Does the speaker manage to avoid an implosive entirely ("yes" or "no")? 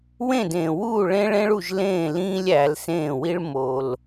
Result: yes